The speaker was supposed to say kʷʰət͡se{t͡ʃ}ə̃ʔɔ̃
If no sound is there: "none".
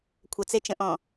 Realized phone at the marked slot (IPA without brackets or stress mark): t͡ʃ